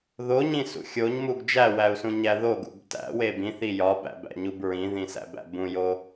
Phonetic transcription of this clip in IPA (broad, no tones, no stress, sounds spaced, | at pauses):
ð o ɲ ĩ s ṵ xʲ o ɲ m u ɡ d͡ʒ æ w æ u̯ s ũ ɲ æ ð o ɡ ṵ b t æ̰ w e b ĩ θ i j ɒ b æ̰ b æ̰ ɲ u b ɹ ĩ ð ĩ s æ̰ b æ̰ b ũ j o